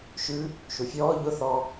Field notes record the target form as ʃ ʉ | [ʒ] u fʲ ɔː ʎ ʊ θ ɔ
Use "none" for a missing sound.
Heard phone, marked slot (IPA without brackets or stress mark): ʃ